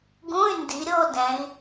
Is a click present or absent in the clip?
absent